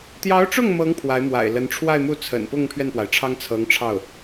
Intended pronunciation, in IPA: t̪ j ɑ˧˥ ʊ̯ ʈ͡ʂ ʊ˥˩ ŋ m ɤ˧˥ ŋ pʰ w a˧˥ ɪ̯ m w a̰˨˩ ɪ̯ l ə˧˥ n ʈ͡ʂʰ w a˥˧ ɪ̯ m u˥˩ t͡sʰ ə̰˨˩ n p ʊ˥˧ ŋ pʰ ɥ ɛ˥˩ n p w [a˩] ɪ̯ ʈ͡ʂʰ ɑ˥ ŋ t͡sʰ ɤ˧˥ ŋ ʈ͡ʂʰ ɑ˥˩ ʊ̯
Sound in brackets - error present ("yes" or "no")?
no